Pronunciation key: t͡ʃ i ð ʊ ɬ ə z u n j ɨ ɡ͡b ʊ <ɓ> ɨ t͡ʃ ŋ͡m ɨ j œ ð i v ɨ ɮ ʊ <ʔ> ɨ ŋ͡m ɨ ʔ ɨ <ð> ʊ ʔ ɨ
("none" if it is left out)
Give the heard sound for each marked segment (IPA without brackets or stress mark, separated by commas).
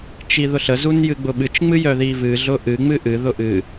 ɓ, ʔ, ð